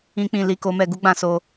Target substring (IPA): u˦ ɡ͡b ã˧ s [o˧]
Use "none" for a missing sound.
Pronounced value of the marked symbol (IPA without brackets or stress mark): o˧